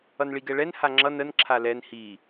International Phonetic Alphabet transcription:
ʌ n ɭ i ɡ ɛ ɭ ɛ n h a ŋ͡ǁ ʌ n ə n ǁʰ a l ɛ n h i

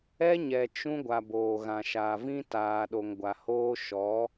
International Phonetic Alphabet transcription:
ɛ˦ ɲ ɛ˨ t͡ʃ ũ˦ ɡʷ a˨ b oː˨ ɣ ã˨ ʃ aː˨ v ĩ˦ t aː˨ ɗ o˨ ŋ ɡʷ a˨ h oː˦ ʃ ɔ˨˦

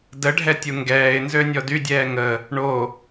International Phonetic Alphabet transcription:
d ə ɖʱ ɛ tʲ u ŋ ɡ ɛː ɪ̯ n z ø nʲ ɔ d y dʲ ɛː ŋ ə | ɳ o

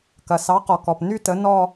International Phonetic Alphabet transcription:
k ɐ˩ s ɑ˨˥ q ɔ˩ k ɔ˩ p n y˥˧ t ə˨˥ n ɔ˥˧

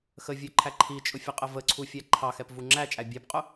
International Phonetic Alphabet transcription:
x ə vʲ ə˞ ǃʰ æ ǃʰ i t͡ʃʼ ʊ fʲ ə qʼ ə v ə ǀʰ u fʲ æ ǃʰ ɑ x ɛ p v u ŋ͡ǁ æ t͡ʃʼ æ bʲ æ p qʼ ʊ

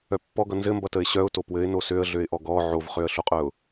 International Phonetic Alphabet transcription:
œ pː ɔ ɡ ʌ n z ɘ m b ʌ t ə ɪ̯ ɕ œ ʊ̯ t o p w ɘ ɪ̯ n o s ø ə̯ ɮ ø ɪ̯ ʔ ɔ ɡ ɔ ʕ o v χ ø ə̯ ɬ o qʼ œ ʊ̯

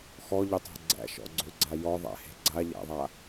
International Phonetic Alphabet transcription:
x ɔ ʎ ø tˤ a̤ ɡ͡ǀ æ̰ ʃ ɔ̰ ɡ͡ǀ ø ɡ͡ǀ a j ɔ ðˤ æ̰ h e̤ ɡ͡ǀ a ʎ æ̰ ðˤ a

